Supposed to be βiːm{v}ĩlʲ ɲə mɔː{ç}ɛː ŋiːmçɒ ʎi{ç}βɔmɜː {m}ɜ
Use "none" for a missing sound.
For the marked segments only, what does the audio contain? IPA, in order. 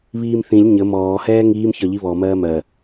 θ, h, none, m

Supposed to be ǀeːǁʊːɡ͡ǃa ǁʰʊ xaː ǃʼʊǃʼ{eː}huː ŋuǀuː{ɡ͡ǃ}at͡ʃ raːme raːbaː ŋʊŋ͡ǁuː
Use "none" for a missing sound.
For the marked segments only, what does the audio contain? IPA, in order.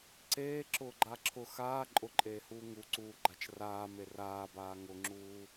eː, ɡ͡ǃ

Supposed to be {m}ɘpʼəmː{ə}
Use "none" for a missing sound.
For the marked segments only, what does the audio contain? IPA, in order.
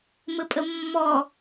m, ɔ

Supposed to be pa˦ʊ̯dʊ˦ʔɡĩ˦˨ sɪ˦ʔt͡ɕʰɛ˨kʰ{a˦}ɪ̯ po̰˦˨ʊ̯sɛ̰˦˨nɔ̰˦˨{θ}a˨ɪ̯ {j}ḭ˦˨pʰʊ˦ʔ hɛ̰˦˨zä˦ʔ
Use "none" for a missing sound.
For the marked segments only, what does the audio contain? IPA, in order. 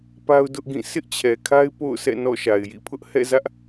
a˦, ʃ, j

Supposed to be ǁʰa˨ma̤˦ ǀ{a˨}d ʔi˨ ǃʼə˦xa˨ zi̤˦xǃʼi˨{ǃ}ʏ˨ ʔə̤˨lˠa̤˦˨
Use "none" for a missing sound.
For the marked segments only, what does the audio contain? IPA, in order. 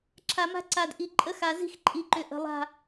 a˨, ǃ

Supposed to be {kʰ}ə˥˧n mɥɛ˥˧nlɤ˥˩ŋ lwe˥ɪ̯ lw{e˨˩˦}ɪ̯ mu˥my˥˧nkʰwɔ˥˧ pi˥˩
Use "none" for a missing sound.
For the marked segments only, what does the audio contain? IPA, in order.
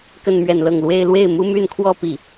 k, e˥˩

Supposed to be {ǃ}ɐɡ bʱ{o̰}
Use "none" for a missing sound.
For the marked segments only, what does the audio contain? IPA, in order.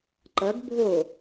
ǃ, o

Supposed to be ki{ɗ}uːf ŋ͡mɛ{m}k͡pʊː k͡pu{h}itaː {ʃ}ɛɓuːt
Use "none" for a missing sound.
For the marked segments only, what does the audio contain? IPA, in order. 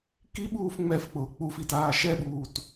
ɓ, f, f, ʃ

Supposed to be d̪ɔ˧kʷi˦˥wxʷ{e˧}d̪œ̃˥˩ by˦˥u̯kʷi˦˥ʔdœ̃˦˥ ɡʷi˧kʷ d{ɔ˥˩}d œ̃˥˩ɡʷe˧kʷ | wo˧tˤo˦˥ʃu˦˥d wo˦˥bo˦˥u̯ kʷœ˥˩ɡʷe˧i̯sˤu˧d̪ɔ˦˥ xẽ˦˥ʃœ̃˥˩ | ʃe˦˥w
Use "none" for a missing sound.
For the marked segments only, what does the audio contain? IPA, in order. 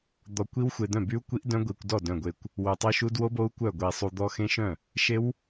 e˧, ɔ˥˩

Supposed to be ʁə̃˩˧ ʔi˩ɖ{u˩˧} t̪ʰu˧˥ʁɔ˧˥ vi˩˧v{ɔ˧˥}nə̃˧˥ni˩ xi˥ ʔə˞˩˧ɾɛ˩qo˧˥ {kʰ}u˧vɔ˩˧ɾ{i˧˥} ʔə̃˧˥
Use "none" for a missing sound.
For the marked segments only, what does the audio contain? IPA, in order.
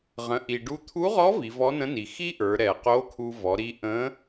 u˧˥, ɔ˧˥, kʰ, i˧

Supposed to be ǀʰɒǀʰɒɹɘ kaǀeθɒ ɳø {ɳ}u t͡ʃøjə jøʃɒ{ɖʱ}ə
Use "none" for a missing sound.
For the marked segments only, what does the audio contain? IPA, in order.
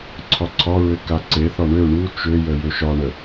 ɳ, ɳ

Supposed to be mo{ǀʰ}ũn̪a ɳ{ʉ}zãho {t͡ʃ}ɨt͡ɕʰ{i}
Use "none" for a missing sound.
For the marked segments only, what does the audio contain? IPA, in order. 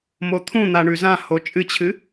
t̪ʰ, ʉ, t͡ʃʼ, ɨ

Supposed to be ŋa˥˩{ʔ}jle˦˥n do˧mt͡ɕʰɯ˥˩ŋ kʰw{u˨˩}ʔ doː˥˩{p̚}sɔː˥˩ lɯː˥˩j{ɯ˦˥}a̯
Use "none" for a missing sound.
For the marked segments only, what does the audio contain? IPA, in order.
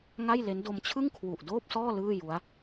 none, u˨˩, p̚, u˦˥

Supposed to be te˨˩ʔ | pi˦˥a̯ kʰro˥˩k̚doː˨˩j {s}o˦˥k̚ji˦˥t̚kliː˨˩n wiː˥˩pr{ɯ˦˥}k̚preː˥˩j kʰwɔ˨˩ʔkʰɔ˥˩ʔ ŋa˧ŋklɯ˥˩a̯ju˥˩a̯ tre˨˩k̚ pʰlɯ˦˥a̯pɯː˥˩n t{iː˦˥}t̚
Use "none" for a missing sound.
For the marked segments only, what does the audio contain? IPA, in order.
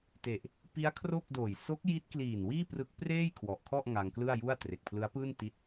s, ɯ˦˥, i˦˥

